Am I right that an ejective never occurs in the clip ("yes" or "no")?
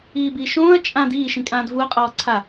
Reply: no